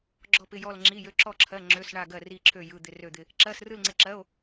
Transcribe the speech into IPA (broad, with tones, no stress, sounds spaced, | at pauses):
ɡ͡ǁ ɔ˥˧ p ɪ˧˥˧ j ɔ˥˧ l ŋ͡ǁ i˧˥˧ j ø˧˥˧ ǁ ɔ˥˧ ǁʰ ɜ˧˥˧ ŋ͡ǁ ø˧˥˧ s ɳ a˥˧ ɡ ɜ˥˧ r i˥˧ ǁʰ ø˥˧ j ɯ˧˥˧ d̪ ɪ˥˧ r ø˥˧ d̪ ɪ˥˧ | ǁ ɜ˧˥˧ s r ɯ˥˧ l ŋ͡ǀ ɪ˧˥˧ ǁ ɜ˧˥˧ o̯